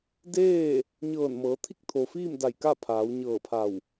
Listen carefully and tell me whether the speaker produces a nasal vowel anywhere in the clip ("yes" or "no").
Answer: no